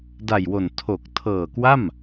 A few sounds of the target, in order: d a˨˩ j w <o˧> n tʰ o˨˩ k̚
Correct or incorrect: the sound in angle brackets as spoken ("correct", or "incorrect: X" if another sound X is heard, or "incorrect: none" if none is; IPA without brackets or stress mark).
incorrect: o˨˩